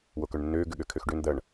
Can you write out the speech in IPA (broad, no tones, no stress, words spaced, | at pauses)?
wokœɳnːøː ɡʏɠøkʰøxɖøn d̪ɐɳ